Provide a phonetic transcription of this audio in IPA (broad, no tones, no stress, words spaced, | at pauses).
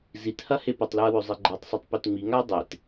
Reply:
zithɐ hepɐtˤlʉɐ̯ wɵzˤiɡ͡ǃatˤsˤotˤ petŋ͡miŋaɐ̯ dˤet